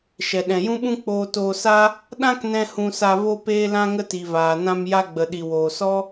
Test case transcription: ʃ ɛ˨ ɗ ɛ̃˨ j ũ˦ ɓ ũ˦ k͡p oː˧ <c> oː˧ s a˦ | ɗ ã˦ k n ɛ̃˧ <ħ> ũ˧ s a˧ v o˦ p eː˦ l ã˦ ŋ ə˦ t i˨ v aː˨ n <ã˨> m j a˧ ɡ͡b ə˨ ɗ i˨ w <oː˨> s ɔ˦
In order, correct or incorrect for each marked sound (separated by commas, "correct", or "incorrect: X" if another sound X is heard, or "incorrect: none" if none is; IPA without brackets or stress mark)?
incorrect: t, incorrect: h, incorrect: ã˧, correct